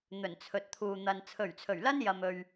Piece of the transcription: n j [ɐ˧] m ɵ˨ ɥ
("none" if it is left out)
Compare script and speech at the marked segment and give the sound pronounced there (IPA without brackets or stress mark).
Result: ɐ˨